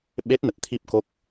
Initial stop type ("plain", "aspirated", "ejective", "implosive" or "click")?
implosive